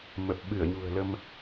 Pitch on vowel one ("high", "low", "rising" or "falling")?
low